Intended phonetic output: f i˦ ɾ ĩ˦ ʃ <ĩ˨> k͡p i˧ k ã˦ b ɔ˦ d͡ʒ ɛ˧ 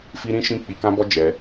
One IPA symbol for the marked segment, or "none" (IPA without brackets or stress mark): ĩ˦